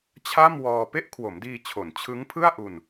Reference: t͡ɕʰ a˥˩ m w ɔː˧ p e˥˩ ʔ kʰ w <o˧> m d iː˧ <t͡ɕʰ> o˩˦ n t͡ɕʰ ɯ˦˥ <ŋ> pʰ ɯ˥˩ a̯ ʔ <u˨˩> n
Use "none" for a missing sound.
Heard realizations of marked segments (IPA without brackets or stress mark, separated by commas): o˩˦, t͡ɕʰ, ŋ, u˧